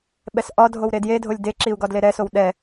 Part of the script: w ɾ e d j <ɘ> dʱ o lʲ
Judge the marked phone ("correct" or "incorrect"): incorrect